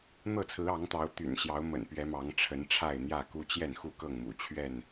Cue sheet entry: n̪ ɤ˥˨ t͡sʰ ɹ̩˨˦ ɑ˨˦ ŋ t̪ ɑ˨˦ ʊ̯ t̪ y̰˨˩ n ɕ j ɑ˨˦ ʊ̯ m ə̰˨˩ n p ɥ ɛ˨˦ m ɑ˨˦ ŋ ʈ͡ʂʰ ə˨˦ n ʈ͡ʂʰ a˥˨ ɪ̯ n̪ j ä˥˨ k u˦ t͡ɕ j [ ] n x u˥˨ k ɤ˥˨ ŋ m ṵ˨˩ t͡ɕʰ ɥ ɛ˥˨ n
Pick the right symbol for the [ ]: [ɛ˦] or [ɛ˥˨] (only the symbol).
ɛ˥˨